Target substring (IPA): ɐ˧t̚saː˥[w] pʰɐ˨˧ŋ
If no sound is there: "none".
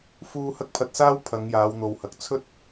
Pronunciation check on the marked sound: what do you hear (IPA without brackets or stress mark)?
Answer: w